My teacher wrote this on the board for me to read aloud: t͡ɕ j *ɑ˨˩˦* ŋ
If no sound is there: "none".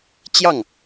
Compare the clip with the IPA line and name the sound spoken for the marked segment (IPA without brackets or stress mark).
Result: ɑ˥˩